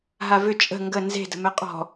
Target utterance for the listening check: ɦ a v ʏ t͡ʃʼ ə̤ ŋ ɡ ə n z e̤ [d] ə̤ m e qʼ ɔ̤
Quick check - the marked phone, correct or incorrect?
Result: correct